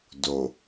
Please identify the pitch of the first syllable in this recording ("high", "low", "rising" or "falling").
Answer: low